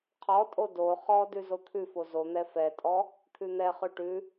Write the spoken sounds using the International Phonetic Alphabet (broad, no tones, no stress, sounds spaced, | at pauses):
qʰ ɔ tʼ o d o χ ɔ d ʉ z o t̪ʰ ʉ f o z o n̪ ɛ f ɛ tʼ ɔ | t̪ʰ ʉ n̪ ɛ χ ʉ ʈ ʉ